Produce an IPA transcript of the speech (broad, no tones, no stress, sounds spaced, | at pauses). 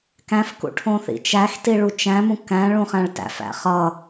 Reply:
k æ̃ f k ṵ ʈʰ õ θ ḭ t͡ʃ æ x t i ɭ u t͡ʃ æ̃ m ũ k æ̃ ɭ ũ χ æ̃ ɭ t æ̰ f æ̰ χ ʌ